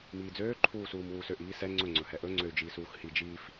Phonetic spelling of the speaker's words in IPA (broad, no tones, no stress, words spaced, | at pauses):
miːd͡zøː ǃʰuːsuːmwuːsøʔ iːsɛ ŋ͡ǀɵ ŋ͡ǀɵhɛʔɵ ŋ͡ǀøy̯d͡ʒiːsuːxhi d͡ʒiːf